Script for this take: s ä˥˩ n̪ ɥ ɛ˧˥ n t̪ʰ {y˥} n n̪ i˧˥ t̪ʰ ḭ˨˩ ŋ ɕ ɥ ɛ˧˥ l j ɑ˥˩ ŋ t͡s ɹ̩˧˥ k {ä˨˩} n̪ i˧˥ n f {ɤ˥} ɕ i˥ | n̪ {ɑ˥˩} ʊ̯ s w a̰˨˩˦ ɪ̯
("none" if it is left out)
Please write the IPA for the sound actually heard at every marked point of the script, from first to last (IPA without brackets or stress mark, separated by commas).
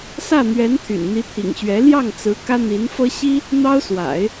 y̰˨˩, ä˥, ɤ˥, ɑ˥